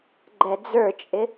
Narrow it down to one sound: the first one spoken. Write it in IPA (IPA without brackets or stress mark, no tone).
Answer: ɡ͡ǃ